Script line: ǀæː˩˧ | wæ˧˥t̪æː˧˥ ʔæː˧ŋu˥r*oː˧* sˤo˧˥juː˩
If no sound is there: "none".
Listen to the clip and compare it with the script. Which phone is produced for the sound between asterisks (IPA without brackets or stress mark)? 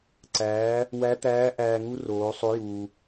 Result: oː˩˧